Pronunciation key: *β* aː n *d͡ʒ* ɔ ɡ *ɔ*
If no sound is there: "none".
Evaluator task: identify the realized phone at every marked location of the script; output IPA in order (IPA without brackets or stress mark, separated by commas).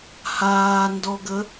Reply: h, d, ə